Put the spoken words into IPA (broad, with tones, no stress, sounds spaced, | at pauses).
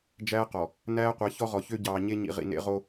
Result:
d͡ʒ æː˦ q ɔ˨ | n æː˦ qʷ ɛ˨˦ ç ɔ˦ ʁ ɔ˨ ç ø˦ ɟ ɑː˨ ɲ e˦ ɲ ḭ˨ ʁ ḭ˨ n ḛ˦ ʁ o˦